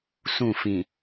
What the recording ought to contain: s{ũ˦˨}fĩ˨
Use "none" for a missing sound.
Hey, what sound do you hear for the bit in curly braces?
ũ˦˨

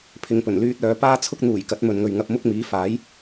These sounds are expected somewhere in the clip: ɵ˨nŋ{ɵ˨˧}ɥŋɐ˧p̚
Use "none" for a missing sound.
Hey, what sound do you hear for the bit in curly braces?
ɵ˨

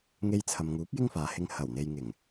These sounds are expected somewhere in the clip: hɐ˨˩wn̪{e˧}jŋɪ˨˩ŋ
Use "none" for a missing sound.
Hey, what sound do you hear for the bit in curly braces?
e˨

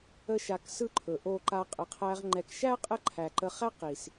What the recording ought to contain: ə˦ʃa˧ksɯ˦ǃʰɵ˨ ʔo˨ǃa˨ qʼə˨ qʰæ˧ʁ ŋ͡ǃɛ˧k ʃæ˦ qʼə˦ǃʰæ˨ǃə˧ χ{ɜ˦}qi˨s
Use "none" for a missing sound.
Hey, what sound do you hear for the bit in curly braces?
æ˦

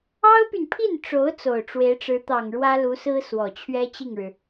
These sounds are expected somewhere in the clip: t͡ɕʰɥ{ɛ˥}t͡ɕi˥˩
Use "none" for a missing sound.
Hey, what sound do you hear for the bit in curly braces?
ɛ˥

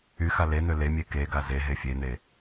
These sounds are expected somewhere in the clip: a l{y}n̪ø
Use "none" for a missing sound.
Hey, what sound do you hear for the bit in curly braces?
e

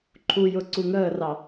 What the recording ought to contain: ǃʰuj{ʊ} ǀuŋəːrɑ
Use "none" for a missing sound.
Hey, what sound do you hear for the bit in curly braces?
ʊ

